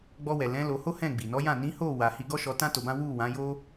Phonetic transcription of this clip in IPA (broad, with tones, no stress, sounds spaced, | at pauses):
ɡ͡b ɔ˧ w ɛ˨ l ɛ̃˨˦ l o˧ h o˦ h ɛ̃˦˨ ɡ͡b i˨ n ɔ˨˦ j ã˦˨ n ĩ˨˦ h o˦˨ w a˧ h i˦ ɡ ɔ˦ ʃ ɔ˧ t ã˦ t o˧ b ã˦ w u˦˨ w ã˨˦ j o˦